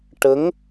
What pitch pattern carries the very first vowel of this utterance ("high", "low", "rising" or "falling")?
rising